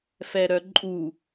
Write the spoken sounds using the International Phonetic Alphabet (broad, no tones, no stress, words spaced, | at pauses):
fɛɾœǃʼu